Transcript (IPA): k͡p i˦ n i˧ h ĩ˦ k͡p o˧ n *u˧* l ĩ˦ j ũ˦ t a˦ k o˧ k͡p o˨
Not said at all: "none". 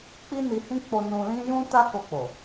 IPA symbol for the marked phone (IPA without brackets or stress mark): ũ˧